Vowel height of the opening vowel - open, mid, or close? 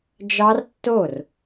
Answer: open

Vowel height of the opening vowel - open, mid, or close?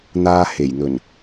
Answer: open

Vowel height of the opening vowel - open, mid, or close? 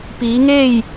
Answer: close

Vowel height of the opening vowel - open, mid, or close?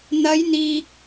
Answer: open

